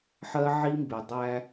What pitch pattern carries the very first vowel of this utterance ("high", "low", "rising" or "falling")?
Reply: high